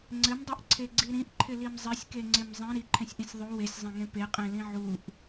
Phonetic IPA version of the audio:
ŋ͡ǀ ɘ m dˤ i ʔ ǀʰ e ɡ͡ǀ i ɾ ĩ ʔ ǃʰ ɪ l i m zˤ i sʲ k e ŋ͡ǀ e m zˤ ĩ ɾ i ǃʰ ẽ sʲ ʔ ĩ sʲ ðˤ u w e sʲ zˤ ẽ ŋ ẽ p e qʼ ẽ l ĩ ʕ u ʔ

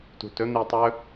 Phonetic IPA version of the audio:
t ṳ t ɵ n̪ i tˤ ɵ

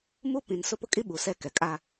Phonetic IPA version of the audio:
m u˦ p ĩ˨ n s ʊ˦ p ʊ˦ kʼ i˦ ɓ u˨ s ɛ˦˨ k ɛ˨ kʼ a˦

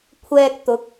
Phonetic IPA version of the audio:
kʷʰ ɛː˧ k̚ t̪ ʊ˨˥ k̚

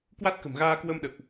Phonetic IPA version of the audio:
k w a˦˥ t̚ k ə̤˨˩ m ɣ aː˧ k w ə˧ m ɗ ə̰˧˨ w ʔ

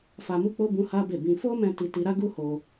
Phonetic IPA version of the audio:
f a˧ m u˦ k͡p o˦ b ũ˦ h a˦ b e˦˨ b ĩ˧ f o˦ m ɛ̃˧ t i˧ t i˧ ɾ a˦ ɡ u˦ h o˧

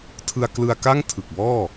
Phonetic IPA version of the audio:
tʰ ɯ˧ a̯ k l ɯ˧ a̯ k a˥˩ ŋ tʰ ɯ˨˩ k̚ b ɔː˥˩

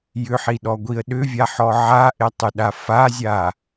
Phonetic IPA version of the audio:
j ʏ ħ i ɗ ɔ ɡʷ i ə̯ ɗ ʏ vʲ a ħ ɔ ʕ a ʔ e tˤ ʏ ɗ a f a zʲ a

